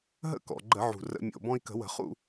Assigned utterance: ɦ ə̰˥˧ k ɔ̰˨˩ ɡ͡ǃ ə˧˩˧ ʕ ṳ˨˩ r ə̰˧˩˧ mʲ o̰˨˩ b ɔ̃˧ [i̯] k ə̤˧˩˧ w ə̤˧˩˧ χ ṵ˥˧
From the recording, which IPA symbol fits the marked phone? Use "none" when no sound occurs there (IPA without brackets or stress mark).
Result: i̯